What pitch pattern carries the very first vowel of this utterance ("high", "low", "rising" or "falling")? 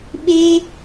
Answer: high